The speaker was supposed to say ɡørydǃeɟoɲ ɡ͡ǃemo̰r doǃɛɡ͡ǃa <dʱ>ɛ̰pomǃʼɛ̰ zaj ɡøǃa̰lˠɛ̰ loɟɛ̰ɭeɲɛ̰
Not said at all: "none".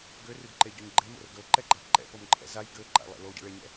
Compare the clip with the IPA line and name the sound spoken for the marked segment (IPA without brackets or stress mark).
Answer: ǃ